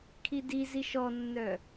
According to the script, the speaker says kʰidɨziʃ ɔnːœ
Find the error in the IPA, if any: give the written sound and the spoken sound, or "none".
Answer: ɨ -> i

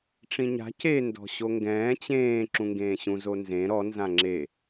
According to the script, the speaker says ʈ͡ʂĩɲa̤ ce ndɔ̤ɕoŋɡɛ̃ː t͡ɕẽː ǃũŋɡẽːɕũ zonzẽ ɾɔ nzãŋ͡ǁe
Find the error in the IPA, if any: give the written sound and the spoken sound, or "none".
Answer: ǃ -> ǁ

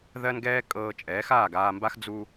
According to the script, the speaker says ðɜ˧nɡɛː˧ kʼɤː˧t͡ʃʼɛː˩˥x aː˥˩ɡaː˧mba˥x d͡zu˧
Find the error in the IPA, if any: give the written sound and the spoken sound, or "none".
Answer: none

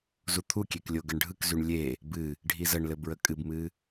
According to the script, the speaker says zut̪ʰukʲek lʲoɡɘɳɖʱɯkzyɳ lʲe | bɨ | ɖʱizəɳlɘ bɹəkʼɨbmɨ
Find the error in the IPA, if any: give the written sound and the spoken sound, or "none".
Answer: none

